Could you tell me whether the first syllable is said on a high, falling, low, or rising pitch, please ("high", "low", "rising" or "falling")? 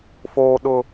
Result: high